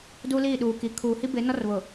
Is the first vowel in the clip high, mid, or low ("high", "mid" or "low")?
high